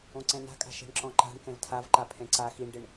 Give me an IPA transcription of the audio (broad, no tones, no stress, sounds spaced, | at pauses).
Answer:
õ ǀ ɛ̃ n a̤ kʼ a̤ ʃ ɛ̤ ɳ ǁ ɔ̃ ǃ a̤ ɳ k ɛ̃ v tʰ a v ǃ a pʰ ɛ̃ ǀ a x i ɳ ɖ ɪ ɳ